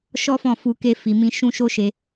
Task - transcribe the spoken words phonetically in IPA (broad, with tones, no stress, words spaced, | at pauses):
ʃɔ˦fɔ̃˦˨fu˧ ke˧fi˨mĩ˧ ʃũ˦ʃo˦ʃe˧